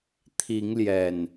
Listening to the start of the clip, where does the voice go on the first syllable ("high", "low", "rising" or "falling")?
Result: rising